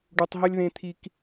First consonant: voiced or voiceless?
voiced